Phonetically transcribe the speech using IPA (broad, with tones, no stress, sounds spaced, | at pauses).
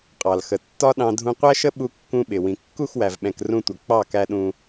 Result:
qʼ ɑ˨ l x ə˨ tː ɒ˦ ɗ ɑ̃˧ dʱ ũ˧ qʷ æ˦ ʃ ə˦ ɓ u˧ kː ũ˧ ɓ ɪ˨ w ĩ˨ kː u˦˨ x w æ˨ v ɓ ɛ̃˨ k r ũ˧ tʷ ʌ˨ k͡p ɑ˦˨ k æ˧ ɗ ũ˧